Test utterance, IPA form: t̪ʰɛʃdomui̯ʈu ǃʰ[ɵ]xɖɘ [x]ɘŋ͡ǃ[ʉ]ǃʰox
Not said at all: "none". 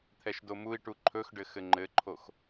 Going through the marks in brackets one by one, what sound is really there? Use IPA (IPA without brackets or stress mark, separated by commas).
ɵ, x, ɘ